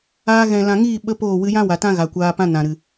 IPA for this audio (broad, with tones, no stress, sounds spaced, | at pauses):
aː˧ ɣ ɛ̃˨ l ã˨ ŋ iː˦˨ ɓ ə˦ p oː˦˨ w ɨ˧ j ã˦ w a˨ t ã˦ ɣ a˨ kʷ aː˧ p ã˦ n ã˨ ɾ ɨ˨